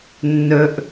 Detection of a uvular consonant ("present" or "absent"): absent